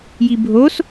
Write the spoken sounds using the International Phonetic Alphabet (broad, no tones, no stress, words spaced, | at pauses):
jibʱos